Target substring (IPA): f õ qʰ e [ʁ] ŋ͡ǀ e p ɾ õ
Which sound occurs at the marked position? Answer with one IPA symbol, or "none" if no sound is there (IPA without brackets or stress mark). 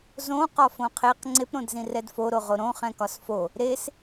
q